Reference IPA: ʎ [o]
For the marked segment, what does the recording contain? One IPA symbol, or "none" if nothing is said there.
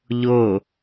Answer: o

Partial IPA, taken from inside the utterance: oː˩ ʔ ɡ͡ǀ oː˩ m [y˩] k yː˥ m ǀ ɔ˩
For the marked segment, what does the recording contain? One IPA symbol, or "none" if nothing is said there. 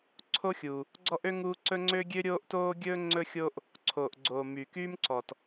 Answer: y˩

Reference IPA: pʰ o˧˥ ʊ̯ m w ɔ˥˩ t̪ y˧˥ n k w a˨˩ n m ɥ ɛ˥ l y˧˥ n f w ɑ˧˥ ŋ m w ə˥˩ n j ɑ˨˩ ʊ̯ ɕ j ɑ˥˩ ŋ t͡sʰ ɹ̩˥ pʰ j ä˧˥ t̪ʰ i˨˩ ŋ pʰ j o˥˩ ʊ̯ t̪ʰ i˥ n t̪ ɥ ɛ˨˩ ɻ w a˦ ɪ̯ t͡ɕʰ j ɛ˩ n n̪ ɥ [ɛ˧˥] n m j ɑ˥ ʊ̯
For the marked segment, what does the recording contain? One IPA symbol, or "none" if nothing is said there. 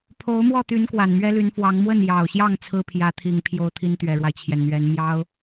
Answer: ɛ˧˥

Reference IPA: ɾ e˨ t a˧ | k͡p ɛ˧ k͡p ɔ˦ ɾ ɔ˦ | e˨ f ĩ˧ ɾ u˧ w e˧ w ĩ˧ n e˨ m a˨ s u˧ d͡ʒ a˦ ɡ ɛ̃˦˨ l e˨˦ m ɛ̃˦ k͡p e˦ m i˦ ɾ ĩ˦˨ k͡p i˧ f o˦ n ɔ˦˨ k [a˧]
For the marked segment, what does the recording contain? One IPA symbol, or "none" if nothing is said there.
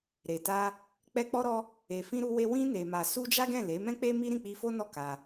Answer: a˧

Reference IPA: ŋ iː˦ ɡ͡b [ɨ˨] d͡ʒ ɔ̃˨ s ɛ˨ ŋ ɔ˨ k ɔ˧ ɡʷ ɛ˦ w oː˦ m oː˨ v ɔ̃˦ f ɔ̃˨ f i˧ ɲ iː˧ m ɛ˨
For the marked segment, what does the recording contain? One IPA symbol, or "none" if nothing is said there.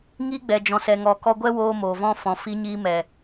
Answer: ɛ˨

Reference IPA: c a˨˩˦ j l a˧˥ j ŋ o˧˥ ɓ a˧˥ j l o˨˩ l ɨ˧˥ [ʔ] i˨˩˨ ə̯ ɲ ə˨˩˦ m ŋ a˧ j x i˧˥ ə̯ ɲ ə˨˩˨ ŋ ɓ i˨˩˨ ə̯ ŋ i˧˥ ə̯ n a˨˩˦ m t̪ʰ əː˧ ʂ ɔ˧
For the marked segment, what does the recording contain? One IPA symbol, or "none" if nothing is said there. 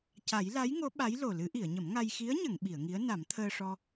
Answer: ʔ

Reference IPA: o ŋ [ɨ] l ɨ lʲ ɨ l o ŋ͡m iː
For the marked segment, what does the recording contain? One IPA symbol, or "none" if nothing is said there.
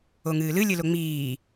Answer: ɨː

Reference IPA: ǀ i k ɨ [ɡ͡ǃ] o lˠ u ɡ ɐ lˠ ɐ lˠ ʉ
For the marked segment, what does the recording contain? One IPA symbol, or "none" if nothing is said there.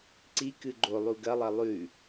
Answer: ɡ͡ǃ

